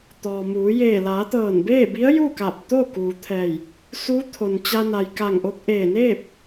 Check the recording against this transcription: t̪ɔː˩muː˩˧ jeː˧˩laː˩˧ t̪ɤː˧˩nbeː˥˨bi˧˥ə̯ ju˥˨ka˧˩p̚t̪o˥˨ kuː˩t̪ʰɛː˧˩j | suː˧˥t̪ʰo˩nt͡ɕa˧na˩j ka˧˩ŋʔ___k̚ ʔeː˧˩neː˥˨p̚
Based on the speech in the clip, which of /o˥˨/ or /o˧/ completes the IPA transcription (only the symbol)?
o˧